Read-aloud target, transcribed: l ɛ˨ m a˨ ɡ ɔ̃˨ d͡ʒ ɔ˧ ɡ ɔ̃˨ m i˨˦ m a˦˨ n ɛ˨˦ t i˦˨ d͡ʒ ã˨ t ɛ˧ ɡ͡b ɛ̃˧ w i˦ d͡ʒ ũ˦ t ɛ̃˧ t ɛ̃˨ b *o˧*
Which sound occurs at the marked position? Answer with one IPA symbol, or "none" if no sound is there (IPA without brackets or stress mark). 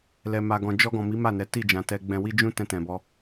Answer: ɔ˧